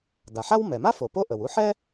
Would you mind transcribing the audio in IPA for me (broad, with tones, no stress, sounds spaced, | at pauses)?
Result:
d a˩ ħ a˥ w m ɛ˩ m a˥ f o˩ p o˥ ʔ ə˩ w u˥ ħ ɛ˥